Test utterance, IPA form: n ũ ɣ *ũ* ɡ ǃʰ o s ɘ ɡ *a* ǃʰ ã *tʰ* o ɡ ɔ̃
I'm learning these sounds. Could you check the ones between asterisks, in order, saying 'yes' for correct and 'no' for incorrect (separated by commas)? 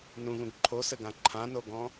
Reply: yes, no, no